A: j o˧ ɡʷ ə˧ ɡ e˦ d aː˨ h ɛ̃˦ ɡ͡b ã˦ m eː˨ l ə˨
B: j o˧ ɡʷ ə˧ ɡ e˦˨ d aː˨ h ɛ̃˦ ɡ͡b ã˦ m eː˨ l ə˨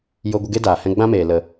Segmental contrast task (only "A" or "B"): A